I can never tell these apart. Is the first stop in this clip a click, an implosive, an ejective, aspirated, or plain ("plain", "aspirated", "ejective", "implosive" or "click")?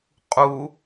ejective